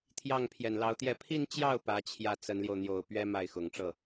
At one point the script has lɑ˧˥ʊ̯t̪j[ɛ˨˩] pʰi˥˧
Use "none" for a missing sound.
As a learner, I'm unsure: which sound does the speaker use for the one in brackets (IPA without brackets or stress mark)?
ɛ˥˧